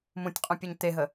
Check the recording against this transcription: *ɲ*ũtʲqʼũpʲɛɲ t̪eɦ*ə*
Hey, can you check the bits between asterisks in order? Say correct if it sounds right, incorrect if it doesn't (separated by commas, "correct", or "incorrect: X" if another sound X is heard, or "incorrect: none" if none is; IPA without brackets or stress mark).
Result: incorrect: m, correct